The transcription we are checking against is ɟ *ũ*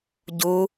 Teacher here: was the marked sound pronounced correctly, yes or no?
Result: no